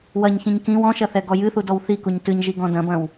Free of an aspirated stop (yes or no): yes